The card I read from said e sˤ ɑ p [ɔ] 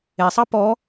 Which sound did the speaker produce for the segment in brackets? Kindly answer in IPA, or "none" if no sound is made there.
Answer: ɔ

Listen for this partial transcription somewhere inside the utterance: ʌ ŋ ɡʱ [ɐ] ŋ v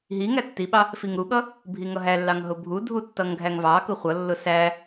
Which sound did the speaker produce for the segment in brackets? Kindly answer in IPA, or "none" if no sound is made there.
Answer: æ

